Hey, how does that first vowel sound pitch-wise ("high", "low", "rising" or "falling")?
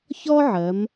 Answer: high